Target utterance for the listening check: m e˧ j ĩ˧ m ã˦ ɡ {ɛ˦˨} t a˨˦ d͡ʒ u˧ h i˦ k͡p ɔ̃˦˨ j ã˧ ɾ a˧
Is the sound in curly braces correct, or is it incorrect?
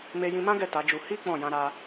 correct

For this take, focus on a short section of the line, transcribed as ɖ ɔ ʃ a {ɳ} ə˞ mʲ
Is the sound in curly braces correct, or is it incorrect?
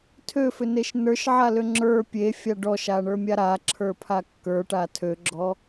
correct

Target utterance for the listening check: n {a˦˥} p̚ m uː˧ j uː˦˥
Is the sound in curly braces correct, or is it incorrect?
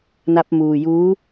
correct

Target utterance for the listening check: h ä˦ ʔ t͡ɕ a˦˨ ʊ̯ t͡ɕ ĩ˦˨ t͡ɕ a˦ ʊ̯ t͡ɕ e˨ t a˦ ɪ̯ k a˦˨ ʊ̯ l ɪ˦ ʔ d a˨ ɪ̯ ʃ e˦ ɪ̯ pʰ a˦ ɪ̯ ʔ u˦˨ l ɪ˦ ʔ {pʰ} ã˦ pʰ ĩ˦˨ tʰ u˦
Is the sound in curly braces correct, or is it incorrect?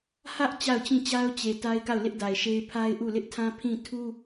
incorrect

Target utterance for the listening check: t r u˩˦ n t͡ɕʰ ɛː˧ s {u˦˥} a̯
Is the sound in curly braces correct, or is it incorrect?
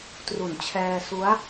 correct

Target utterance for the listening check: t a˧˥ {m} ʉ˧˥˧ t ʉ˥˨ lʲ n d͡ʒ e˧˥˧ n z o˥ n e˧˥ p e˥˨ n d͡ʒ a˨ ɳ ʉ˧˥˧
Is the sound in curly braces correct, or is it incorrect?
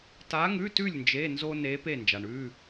incorrect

